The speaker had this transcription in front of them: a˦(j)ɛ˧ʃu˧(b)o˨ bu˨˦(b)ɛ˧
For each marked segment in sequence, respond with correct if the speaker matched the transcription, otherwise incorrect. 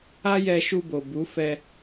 correct, correct, incorrect: f

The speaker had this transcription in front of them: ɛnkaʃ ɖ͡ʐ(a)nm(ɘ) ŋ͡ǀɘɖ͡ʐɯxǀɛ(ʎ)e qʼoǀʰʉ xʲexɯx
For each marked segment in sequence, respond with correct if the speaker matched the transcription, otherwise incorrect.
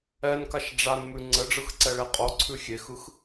correct, incorrect: ʉ, incorrect: ɭ

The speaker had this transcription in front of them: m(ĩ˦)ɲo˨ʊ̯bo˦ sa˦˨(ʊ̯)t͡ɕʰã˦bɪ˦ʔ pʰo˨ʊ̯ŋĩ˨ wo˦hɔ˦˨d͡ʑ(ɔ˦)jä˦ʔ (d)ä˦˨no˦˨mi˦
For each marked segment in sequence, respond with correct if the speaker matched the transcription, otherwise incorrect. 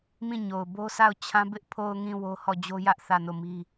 incorrect: ĩ˦˨, correct, incorrect: o˦, incorrect: θ

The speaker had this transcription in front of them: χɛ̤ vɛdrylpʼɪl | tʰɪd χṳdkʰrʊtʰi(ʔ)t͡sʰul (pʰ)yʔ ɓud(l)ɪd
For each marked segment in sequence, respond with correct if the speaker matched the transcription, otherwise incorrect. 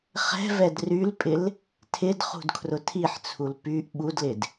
incorrect: ħ, incorrect: p, correct

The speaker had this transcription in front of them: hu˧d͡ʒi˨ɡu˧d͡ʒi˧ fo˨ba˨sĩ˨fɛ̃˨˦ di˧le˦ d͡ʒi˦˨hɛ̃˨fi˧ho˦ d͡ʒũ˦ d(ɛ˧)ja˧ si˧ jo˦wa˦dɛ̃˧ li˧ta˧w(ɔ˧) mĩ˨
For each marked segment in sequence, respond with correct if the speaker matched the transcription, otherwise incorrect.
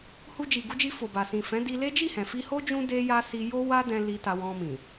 incorrect: e˧, incorrect: ɔ̃˧

